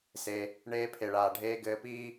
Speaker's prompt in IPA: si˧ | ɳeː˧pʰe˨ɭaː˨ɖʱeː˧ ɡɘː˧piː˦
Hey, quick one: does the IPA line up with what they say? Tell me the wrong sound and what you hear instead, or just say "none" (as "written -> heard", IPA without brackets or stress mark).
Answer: i˧ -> e˧